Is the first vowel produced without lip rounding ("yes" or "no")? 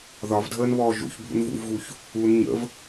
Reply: no